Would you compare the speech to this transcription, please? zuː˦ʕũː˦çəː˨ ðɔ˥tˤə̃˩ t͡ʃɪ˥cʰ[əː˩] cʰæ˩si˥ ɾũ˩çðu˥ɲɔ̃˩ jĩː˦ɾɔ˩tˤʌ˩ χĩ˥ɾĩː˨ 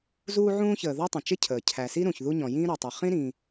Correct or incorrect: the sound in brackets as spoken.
correct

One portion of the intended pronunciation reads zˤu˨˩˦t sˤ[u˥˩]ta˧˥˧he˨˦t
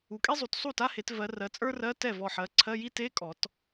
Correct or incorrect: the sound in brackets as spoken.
correct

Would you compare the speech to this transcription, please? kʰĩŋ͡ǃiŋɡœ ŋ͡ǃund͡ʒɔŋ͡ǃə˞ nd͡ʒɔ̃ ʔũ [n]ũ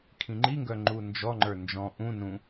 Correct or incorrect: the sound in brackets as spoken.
correct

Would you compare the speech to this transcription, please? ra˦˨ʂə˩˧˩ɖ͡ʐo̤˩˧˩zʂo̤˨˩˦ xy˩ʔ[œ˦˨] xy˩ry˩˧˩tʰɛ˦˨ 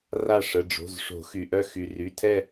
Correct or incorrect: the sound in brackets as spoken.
correct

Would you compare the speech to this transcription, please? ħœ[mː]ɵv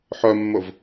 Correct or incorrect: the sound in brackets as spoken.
correct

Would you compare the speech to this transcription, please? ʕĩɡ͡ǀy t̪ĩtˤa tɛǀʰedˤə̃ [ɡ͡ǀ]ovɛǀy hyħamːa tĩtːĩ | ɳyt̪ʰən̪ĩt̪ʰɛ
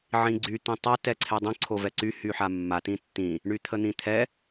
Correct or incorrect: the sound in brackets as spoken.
incorrect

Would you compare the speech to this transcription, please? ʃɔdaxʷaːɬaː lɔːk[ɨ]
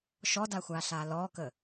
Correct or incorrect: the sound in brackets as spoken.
incorrect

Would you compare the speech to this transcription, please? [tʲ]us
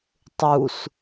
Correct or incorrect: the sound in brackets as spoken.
incorrect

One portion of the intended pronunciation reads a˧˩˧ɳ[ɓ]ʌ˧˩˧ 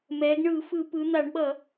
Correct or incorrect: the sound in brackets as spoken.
correct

